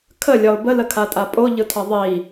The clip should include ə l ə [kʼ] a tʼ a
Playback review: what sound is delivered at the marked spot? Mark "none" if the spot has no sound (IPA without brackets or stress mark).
kʰ